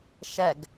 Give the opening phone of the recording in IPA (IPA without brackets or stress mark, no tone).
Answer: ʃ